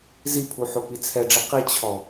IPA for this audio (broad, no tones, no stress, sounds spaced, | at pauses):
z i pʰ u ħ o p i t͡sʰ ɛ ɖ͡ʐ i q i t͡ɕʰ ɔ